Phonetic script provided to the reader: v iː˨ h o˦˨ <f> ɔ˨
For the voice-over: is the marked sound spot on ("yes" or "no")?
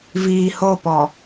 no